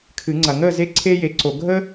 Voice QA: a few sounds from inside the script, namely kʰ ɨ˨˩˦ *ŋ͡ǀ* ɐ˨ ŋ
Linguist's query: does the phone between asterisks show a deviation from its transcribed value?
no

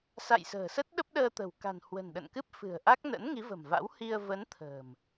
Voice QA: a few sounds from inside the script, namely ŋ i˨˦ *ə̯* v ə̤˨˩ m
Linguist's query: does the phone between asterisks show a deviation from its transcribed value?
yes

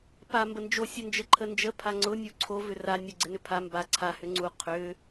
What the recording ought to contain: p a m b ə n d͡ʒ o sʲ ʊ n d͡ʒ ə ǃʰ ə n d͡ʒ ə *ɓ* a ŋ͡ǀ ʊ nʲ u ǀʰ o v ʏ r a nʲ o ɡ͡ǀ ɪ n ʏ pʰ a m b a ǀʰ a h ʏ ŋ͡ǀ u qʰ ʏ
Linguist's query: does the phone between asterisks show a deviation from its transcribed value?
yes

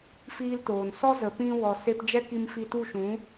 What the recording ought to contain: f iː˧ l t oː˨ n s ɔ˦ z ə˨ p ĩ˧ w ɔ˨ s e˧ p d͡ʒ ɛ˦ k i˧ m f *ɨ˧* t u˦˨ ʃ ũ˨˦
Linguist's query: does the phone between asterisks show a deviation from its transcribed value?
yes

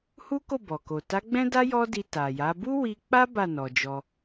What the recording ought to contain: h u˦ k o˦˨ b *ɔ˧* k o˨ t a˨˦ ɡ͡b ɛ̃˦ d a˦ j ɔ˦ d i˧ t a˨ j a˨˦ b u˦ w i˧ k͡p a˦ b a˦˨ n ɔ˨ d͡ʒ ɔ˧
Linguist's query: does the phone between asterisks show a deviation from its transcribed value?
yes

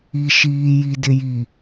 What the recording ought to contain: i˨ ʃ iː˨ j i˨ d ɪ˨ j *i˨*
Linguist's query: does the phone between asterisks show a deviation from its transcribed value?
no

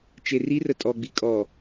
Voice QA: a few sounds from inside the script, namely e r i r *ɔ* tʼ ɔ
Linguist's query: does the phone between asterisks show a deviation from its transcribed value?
yes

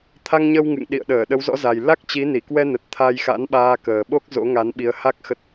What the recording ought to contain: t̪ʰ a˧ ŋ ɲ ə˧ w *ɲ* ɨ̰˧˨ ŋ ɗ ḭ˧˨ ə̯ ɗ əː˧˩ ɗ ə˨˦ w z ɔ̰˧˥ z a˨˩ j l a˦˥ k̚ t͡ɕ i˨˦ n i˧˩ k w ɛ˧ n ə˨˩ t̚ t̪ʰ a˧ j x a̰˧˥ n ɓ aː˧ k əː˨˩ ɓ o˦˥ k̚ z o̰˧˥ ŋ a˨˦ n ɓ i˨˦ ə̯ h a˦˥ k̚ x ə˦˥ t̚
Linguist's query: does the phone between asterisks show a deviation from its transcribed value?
yes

